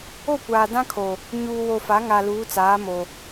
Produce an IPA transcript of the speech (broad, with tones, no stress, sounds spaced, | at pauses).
o˦˨ kʷ aː˨ d ã˦ kʰ o˨ | ɲ uː˨ w o˨ f a˨˦ ŋ a˨ l uː˨˦ t͡s aː˨˦ m o˨